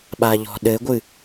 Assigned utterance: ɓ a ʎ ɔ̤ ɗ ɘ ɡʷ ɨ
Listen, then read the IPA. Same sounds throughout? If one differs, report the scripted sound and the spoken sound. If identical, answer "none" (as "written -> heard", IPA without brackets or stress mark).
none